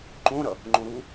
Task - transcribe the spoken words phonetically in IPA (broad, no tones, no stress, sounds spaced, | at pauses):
ǃ õ ɾ ʌ | ŋ͡ǃ õ ɾ u